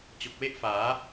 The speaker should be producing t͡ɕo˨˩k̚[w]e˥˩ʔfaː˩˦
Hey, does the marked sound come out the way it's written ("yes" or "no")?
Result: yes